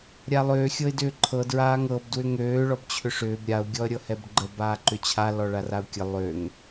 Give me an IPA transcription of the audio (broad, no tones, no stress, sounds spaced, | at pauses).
ɾʲ a lˠ øː xʲ ɤ ɪ̯ d ʏː ǃʰ ɤ d ɹ aː ŋ ɤ b d w ʏ ŋ øː ɭ ɔ b t͡ɕʰ ʏ ʂ ʏː b ɾʲ a ʊ̯ ɡʲ ɔ ə̯ ɾʲ ɤ h ɛ b ɡ͡ǃ ə b aː ǃ ʏ t͡ɕʰ a l ɔ ɭ a r a ʊ̯ kʲ ə lˠ ø ŋ